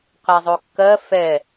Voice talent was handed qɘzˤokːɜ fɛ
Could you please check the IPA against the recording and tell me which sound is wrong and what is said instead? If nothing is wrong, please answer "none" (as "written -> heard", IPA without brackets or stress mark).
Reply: ɘ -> ɛ